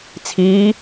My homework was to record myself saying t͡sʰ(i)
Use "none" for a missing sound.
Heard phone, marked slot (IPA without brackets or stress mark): iː